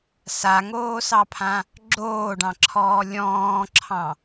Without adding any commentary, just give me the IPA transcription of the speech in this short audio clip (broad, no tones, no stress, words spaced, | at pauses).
saŋoːsɑpʰã | ɡ͡ǁoːɖɑ̃ǁʰɔː lʲɔ̃ːǁʰɑ̃